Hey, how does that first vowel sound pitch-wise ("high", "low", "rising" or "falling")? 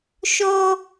high